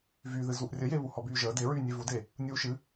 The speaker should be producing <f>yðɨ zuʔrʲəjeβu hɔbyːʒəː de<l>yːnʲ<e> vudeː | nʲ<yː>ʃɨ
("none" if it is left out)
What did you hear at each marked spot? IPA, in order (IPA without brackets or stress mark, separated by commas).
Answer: v, ɹ, e, uː